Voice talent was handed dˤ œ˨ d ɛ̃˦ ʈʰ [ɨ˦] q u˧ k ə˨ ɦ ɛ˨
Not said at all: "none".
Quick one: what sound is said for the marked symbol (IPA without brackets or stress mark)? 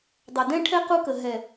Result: ɛ˦